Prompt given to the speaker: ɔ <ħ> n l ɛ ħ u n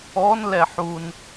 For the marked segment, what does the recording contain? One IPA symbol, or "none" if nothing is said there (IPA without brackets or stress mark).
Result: none